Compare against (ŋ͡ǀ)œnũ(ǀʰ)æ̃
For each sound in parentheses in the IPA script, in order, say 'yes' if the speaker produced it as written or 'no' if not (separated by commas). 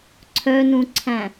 no, yes